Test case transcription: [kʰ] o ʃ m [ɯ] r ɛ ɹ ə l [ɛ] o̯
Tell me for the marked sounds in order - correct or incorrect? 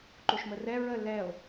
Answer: incorrect, incorrect, correct

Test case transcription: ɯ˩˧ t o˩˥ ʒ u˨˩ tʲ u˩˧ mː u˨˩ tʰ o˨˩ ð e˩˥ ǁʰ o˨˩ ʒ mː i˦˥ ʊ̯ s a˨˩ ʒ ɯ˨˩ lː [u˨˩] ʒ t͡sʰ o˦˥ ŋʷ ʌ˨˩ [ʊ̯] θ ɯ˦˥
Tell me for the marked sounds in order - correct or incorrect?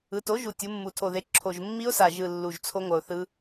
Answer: correct, correct

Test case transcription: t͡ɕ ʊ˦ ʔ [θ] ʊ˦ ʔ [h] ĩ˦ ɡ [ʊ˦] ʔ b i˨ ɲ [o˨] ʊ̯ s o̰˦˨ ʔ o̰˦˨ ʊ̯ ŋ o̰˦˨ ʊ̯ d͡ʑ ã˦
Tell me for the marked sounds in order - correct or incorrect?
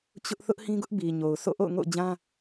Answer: correct, correct, correct, correct

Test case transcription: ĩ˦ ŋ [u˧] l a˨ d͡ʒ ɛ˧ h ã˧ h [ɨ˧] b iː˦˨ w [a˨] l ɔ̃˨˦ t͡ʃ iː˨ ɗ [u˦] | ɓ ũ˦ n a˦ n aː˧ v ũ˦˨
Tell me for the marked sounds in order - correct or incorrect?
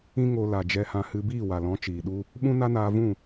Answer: incorrect, correct, correct, correct

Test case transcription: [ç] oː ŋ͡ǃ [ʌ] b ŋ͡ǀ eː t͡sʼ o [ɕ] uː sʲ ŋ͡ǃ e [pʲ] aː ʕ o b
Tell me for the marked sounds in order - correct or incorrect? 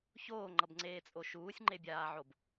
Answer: correct, correct, incorrect, incorrect

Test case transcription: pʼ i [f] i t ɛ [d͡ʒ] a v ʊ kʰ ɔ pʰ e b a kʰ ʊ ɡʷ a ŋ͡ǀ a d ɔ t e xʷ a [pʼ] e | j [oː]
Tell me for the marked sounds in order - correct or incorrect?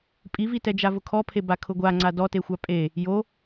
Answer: incorrect, correct, correct, incorrect

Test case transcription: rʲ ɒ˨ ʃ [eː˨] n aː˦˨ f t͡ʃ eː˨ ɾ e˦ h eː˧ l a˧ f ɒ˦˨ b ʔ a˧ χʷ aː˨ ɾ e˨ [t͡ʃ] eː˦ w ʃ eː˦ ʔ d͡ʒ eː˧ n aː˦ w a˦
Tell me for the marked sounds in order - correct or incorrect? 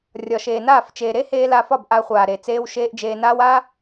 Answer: correct, incorrect

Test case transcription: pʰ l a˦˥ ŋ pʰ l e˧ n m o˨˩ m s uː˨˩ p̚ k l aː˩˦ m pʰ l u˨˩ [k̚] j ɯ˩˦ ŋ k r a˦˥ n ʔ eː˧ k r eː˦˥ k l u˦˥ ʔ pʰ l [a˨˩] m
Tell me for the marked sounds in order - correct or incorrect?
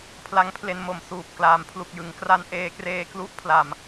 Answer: correct, correct

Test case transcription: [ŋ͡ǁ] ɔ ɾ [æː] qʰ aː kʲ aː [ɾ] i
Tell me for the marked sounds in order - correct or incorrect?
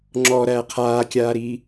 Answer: correct, incorrect, correct

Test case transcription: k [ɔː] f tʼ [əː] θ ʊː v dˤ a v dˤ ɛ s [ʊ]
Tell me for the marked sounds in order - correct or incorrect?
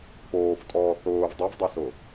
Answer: incorrect, incorrect, correct

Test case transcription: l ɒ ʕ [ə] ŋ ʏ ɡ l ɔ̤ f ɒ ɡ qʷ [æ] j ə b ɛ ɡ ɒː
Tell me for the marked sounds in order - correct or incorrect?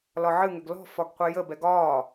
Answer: incorrect, incorrect

